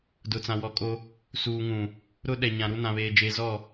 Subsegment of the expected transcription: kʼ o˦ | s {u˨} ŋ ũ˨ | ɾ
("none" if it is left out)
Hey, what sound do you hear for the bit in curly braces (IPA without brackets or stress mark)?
uː˨